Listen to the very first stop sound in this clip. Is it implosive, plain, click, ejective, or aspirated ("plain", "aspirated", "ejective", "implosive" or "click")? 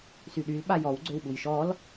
implosive